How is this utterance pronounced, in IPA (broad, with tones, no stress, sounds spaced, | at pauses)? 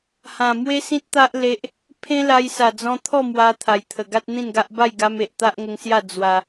h ã˨˩ m w e˦ s ĩ˦ t̚ t̪ a˦ ʔ l e˦ ʔ | pʰ ẽ˦ l a˧ j s a˨˩ d͡z ɔ̃˧ t̪ʰ ɔ˥˧ m w a˧ t̪ʰ a˨˩ j t̪ʰ ə˨˩ ɡ a˦ t̚ n̪ ĩ˥˧ n ɡ a˦ ʔ b a˥˧ j ɡ a˧ m e˨ ʔ t̪ a˦ ʔ ŋ ə˧ ŋ s j a˥˧ d͡z w a˧